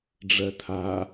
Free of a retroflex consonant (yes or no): no